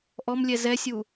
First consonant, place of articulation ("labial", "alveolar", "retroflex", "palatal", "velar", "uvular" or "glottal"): glottal